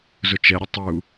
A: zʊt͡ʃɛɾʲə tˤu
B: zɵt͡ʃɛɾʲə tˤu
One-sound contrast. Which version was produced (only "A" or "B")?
A